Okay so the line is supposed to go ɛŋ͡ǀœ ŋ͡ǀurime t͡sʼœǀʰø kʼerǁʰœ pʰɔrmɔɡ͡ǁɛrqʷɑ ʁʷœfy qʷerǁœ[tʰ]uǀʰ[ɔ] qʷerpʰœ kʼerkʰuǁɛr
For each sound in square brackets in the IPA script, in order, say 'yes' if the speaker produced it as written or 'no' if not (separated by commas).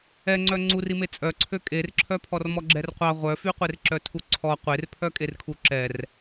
yes, yes